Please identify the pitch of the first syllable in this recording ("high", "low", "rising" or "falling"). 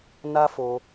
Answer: high